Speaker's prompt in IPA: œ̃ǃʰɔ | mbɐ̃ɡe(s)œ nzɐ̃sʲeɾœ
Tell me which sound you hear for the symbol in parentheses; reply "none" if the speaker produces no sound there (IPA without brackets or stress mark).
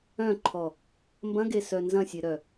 s